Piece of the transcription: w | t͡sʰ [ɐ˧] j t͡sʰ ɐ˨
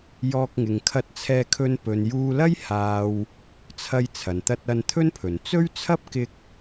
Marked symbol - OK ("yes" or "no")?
yes